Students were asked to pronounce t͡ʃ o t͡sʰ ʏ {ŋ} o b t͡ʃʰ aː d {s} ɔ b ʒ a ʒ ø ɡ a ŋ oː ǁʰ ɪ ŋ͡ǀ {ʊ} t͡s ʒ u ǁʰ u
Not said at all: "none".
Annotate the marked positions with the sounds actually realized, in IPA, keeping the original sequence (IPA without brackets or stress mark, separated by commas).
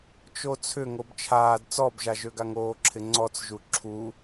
ŋ, t͡s, ɔ